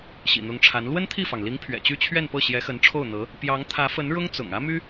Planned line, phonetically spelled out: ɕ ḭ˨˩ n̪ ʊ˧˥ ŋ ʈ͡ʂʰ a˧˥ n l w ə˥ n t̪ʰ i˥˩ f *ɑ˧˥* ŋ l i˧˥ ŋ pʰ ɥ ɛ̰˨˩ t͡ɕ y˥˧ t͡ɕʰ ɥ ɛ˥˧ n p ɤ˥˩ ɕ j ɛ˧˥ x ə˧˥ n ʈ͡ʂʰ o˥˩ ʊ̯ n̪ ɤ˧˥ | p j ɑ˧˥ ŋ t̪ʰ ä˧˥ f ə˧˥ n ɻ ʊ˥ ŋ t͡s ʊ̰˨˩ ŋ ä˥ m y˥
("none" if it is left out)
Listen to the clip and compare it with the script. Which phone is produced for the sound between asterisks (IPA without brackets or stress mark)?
ɑ˩